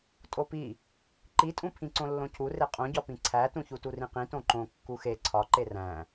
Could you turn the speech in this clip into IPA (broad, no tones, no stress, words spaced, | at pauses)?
tʼopi | ǃitʼũ pʰĩǀõlːõcʰu reqʼõɟɒ pĩǀʰætũ çuturĩqĩ tõǃõ kːuxe ǀʰɒǃe ræ̃